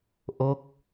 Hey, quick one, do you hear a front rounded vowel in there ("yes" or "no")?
no